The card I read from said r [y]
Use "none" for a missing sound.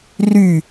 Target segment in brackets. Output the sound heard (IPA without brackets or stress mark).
y